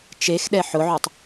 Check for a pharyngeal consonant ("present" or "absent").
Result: present